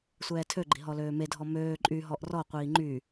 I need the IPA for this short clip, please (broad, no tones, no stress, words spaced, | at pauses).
sʷɛːtʰøɡ͡ǃi̤ ɦɔløːmedʱɔ møː ǃʼyɦɔʔ rɔqʷiː ŋ͡ǃy